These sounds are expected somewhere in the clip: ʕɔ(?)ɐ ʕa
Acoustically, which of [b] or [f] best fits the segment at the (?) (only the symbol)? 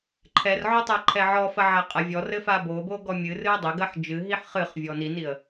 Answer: f